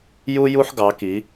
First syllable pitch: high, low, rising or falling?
high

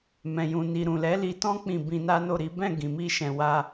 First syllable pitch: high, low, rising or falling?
low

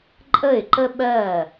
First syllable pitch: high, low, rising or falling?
falling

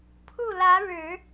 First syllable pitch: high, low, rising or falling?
falling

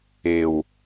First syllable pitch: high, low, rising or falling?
low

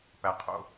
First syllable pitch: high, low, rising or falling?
low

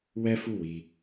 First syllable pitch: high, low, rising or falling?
high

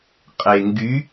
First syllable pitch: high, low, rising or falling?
low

